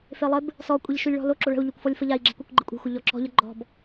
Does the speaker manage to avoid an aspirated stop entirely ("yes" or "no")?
yes